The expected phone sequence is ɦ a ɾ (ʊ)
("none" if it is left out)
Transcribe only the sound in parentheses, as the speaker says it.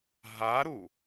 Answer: u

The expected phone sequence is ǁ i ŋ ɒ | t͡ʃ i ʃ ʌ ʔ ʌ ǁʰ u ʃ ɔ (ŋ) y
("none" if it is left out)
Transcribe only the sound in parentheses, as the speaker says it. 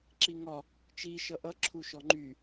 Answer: ŋ͡ǃ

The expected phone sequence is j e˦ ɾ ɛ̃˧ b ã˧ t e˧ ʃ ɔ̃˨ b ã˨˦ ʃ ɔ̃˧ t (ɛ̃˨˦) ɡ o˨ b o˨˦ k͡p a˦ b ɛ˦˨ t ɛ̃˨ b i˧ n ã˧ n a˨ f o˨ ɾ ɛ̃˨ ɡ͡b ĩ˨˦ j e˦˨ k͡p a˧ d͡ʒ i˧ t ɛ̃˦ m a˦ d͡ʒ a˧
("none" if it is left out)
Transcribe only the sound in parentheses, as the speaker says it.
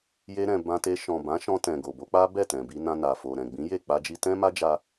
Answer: ɛ̃˨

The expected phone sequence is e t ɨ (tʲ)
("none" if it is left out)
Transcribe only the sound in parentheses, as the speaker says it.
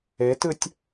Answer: tʲ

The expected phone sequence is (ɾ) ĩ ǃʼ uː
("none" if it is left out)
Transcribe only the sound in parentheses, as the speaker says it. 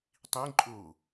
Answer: tˤ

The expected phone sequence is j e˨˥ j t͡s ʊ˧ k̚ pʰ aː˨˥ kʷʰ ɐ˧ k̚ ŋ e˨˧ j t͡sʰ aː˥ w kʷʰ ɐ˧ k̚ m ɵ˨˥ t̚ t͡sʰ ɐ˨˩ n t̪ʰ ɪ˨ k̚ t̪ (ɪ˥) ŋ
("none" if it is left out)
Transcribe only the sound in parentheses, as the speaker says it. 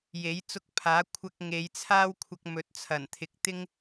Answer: ɪ˥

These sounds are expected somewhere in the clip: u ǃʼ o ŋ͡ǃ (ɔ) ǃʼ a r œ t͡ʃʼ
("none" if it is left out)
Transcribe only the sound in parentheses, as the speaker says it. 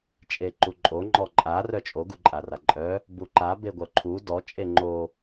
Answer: ɔ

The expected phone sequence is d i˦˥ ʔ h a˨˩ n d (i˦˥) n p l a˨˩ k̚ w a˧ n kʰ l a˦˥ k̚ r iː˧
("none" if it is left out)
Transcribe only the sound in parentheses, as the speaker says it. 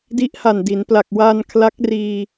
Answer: i˩˦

